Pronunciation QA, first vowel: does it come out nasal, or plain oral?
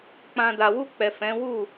nasal